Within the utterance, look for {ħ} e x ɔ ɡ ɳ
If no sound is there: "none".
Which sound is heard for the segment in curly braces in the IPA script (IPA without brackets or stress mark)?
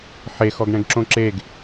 ħ